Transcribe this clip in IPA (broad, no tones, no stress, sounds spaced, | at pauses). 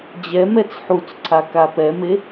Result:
d͡ʑ ɛ m ɛ t͡s ħ u t͡s ǀʰ a k a p ɛ m e